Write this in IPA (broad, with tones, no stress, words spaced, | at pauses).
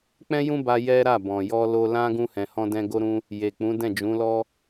k͡pɛ̃˦ jũ˦ba˧ jɛ˦ɾa˦˨ bɔ̃˨jɔ˧ lo˧lã˦ ɡũ˧hɛ̃˨hɔ̃˧dɛ̃˧ ɡo˦ɾũ˦ | je˨k͡pũ˨˦ dɛ̃˦˨d͡ʒũ˨˦lɔ˦